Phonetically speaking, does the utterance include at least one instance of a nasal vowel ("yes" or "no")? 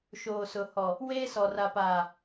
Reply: no